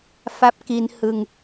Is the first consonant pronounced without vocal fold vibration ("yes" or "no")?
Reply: yes